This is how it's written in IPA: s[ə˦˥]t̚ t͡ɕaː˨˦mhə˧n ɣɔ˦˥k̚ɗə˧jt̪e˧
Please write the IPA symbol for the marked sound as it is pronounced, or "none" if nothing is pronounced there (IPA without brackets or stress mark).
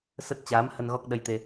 ə˦˥